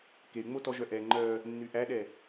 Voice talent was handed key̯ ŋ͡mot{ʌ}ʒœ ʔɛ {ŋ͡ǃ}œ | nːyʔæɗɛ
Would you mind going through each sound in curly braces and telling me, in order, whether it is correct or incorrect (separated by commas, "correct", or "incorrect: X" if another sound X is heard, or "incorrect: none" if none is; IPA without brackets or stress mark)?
incorrect: ɔ, correct